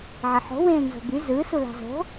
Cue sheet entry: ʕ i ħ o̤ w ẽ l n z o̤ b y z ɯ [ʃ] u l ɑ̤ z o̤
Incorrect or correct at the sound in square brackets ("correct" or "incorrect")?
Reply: incorrect